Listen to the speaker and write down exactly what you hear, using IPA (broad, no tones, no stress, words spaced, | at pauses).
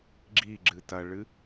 ɡ͡ǁiɡ͡ǁɨ tɐɭɨ